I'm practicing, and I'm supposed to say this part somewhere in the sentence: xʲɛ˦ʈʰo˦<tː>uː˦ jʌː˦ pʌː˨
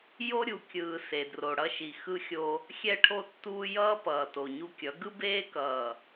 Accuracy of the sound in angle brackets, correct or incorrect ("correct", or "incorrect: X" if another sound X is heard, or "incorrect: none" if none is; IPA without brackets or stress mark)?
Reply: correct